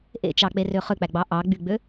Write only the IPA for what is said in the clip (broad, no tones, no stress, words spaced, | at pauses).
ʔḛt͡ʃɑk͡perø χøk͡pæɡ͡bɑ ʔɑɡ͡byɡ͡bø